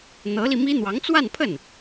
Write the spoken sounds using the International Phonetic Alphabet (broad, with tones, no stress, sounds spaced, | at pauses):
n̪ ɤ˧˥ l i˧ m i˥ n̪ w ɑ˧˥ ŋ t͡s w a˥˧ n pʰ ə˥˩ n